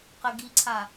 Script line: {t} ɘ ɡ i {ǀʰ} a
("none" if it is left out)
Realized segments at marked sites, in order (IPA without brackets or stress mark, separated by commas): q, ǀʰ